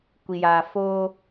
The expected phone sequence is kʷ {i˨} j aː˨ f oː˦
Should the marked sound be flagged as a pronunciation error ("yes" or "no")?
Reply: no